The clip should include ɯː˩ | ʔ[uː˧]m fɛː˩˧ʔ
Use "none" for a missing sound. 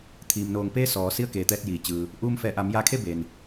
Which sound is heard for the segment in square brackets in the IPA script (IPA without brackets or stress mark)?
uː˧